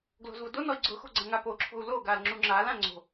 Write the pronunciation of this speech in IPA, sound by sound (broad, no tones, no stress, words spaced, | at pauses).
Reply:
ɡlo̤zvʊdonɔi̯ ɡ͡ǀʊxo̤ ɡ͡ǀɐ̃ŋapoǁʰo̤u̯ loɡal ŋ͡ǁuŋ͡ǁalã ŋ͡ǀo̤